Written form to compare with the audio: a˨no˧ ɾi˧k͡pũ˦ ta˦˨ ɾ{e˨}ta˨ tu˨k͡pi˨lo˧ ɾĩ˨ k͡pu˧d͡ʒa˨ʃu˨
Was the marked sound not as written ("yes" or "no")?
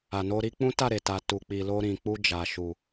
no